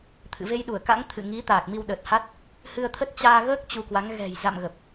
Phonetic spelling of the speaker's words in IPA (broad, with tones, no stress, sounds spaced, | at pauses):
t̪ʰ ɨ̰˧˨ v e˧ j ɗ u˧˩ ə̯ k a̰˧˥ ŋ t̪ʰ ɨ̰˧˨ ŋ i˨˦ t̪ aː˨˩ k̚ m i˧ w ɗ ə˨˩ t̚ h a˦˥ t̚ | h ɨ˧ ə̯ t̪ʰ ə˦˥ t̚ t͡ɕ aː˧ ɣ əː˦˥ k̚ t͡ɕ u˧ k w a˨˦ ŋ ɣ ɛ̤˨˩ j z a̰˧˨ m ɣ ə˨˩ p̚